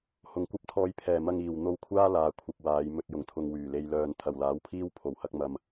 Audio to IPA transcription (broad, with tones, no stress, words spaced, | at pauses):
hʊ˨˩ŋkʷɐ˥p̚t̪ʰɔː˧jpʰɛː˨˩ mɐ˧ŋiː˨˩w n̪o˧wkʷʰaː˥ laː˨˧ kʷʰɐ˨k̚ waː˨˧j mɵ˨t̚jʊ˨˩ŋt̪ʰʊ˨ŋ wyː˨˩le˧jlœː˧n t̪ʰɐ˨˩wlaː˨˥wpʰiː˥w pʰo˨˩whɐ˧k̚ mɐ˨m